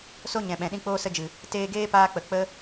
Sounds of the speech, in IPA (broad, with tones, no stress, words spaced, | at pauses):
so˦ ɲɛ̃˨ɓɛ̃˨ ɗĩ˧k͡poː˧sə˧d͡ʒɨ˨ | teː˧ɡeː˦paː˧k͡pə˨ k͡pə˦